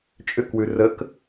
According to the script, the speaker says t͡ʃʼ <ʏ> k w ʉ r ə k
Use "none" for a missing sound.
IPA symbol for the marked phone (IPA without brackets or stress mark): ʏ